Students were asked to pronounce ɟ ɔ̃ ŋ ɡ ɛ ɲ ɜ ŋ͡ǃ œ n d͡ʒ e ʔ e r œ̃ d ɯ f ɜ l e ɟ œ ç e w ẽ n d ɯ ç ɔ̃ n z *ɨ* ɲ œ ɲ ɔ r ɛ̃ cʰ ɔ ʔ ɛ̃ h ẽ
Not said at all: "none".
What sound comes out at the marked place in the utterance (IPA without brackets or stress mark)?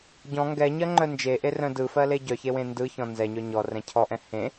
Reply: ɛ